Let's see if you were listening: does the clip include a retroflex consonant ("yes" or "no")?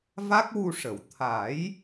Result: yes